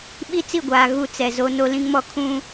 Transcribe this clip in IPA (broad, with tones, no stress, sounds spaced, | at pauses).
ɓ i˦ t͡s i˦˨ ɡʷ aː˨ ɣ u˦ t͡s ɛ˨ z o˦ n o˦ l ĩ˦ ŋ m ɔ˦ kʰ ũ˦